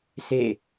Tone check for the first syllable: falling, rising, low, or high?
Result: falling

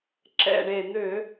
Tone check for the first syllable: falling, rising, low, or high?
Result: low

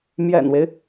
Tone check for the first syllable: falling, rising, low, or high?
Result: low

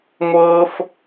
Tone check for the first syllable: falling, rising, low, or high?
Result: high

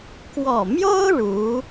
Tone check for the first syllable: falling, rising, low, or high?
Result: low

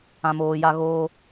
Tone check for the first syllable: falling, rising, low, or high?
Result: low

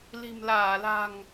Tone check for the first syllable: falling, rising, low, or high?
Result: low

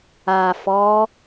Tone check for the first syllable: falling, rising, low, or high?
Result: low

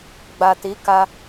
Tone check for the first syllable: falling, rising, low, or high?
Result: low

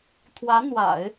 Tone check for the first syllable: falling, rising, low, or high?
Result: rising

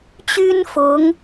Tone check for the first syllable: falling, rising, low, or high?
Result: high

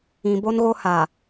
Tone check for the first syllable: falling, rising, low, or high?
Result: low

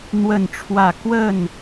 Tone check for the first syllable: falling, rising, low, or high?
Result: falling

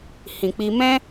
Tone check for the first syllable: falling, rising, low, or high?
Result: low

